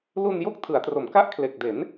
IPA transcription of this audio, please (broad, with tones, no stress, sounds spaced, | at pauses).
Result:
l u˧ n j o˦˥ k̚ tʰ ɯ˩˦ a̯ t r o˩˦ m k a˦˥ ʔ kʰ l e˨˩ k̚ d e˩˦ n